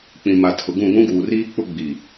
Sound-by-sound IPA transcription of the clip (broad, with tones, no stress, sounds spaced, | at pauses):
k͡p ĩ˨ m a˨ tʰ ʊ˨ ɡ ũ˦˨ ɡʷ ũ˦ ɡ uː˨ r iː˦ k͡p ʊ˦ ɡ͡b i˨